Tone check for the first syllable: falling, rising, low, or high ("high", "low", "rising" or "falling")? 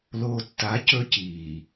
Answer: low